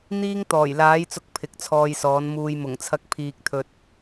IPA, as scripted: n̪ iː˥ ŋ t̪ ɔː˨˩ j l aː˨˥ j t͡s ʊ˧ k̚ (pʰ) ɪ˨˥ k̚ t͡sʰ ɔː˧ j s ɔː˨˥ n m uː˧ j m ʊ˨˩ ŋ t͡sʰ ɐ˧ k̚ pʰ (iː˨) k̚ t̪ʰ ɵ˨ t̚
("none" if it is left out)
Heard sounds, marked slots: pʰ, iː˨

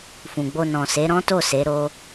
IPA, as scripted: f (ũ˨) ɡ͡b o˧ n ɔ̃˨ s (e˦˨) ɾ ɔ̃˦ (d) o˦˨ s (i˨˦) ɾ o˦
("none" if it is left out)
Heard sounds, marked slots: ũ˨, e˨˦, t, e˨˦

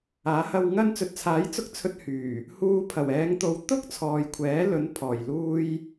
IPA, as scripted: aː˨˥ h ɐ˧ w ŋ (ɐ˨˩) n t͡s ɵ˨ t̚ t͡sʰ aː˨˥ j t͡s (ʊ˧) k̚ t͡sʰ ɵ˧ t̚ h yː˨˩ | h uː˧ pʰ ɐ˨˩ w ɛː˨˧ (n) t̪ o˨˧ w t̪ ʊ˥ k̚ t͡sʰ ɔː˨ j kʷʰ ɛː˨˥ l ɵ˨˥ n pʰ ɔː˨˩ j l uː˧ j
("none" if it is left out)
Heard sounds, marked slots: ɐ˧, ʊ˧, ŋ

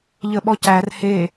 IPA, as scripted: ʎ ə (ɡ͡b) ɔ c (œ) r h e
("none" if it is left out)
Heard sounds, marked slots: ɓ, æ

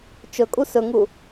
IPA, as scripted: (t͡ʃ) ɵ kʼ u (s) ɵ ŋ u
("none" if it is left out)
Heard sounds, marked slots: t͡ʃ, s

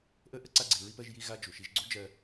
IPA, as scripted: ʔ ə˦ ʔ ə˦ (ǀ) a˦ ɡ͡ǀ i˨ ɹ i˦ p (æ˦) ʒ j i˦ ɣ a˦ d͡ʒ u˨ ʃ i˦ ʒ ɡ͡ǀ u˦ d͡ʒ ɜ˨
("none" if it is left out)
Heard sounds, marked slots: ǀ, ɜ˦

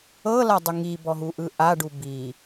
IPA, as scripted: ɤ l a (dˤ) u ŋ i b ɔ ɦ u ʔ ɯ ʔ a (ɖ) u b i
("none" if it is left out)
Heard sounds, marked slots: dˤ, ɖ

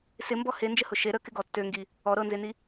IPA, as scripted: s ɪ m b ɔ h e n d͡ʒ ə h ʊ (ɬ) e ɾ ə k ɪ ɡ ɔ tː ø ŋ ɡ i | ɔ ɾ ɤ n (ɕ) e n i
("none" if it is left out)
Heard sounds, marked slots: ʃ, z

